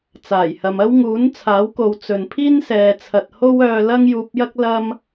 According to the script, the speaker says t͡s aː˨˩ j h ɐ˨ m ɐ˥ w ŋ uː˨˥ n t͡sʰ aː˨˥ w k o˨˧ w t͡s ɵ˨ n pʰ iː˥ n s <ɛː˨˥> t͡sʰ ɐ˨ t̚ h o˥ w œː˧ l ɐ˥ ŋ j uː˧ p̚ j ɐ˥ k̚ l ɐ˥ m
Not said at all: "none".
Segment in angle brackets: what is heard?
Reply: ɛː˨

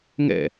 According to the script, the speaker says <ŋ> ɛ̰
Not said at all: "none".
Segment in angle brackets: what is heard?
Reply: ŋ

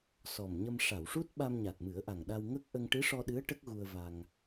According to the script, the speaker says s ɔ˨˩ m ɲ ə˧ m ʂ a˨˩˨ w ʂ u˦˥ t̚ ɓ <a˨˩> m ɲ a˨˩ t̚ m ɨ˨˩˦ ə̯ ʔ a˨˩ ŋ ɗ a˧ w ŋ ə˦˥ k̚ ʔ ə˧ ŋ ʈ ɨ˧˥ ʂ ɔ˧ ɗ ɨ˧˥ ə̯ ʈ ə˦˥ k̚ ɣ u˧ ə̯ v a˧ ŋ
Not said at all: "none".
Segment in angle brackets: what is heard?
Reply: a˧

